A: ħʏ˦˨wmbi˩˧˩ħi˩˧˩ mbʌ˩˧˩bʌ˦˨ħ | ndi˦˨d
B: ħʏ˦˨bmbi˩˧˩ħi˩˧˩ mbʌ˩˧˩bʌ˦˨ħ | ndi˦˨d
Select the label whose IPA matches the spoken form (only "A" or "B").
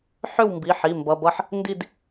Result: A